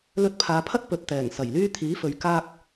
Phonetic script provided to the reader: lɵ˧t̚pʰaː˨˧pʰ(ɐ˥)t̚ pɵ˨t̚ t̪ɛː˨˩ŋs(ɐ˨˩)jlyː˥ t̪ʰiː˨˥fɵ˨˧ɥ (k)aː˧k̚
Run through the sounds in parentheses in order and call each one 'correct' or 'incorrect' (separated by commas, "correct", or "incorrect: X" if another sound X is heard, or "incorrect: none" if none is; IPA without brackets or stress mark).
correct, correct, correct